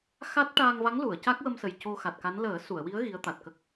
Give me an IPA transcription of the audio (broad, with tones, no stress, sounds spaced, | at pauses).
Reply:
x a˦˥ t̚ ʈ aː˧ ŋ v a˧˥ ŋ l u˨˩˨ ə̯ c a˦˥ k̚ w ə˧ m s ə˨˩ j c o˧ x a˨˩ t̚ k a˧˥ n l əː˨˩˦ s u˨˩˨ ə̯ w i˧˥ ə̯ ɣ i˧˥ ə̯ t̪ a˨˩ t̚ k ə˦˥ k̚